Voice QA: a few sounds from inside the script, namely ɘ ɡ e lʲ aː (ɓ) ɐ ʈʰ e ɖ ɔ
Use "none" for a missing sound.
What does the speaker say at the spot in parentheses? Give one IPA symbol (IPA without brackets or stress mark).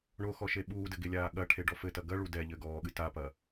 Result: ɠ